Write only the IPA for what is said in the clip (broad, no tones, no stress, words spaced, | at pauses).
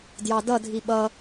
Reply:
djɑdʌdʱi ɓʌ